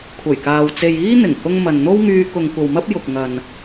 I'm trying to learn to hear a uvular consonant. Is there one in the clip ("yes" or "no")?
no